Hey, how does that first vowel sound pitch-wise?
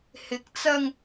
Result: rising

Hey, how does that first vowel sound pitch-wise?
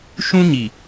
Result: high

